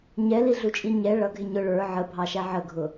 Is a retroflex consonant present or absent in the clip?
present